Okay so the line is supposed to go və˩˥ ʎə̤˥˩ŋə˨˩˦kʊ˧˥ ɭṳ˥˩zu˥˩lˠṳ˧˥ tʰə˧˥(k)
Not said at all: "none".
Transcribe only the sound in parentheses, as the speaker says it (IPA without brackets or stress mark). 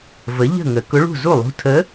none